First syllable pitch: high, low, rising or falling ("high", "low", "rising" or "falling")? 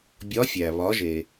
rising